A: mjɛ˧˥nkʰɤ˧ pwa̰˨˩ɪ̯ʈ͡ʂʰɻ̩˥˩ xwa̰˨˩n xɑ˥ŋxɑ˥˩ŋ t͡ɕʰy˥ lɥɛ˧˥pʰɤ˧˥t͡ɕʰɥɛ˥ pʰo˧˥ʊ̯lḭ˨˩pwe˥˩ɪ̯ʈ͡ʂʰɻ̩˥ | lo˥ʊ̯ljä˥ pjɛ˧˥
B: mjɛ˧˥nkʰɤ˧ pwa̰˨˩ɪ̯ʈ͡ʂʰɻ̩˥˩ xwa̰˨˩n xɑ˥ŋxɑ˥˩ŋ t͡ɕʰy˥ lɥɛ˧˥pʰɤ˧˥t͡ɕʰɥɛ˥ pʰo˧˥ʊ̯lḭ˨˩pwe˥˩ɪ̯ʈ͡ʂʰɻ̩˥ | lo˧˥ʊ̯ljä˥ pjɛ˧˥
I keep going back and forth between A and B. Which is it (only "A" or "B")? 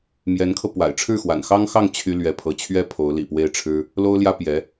A